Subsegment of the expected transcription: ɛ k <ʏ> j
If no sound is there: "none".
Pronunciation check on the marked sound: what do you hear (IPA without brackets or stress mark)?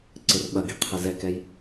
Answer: ɛ